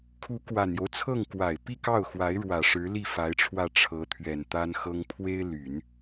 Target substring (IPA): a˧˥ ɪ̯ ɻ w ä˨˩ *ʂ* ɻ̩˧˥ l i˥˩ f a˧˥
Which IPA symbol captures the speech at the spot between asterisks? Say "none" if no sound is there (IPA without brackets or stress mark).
ʂ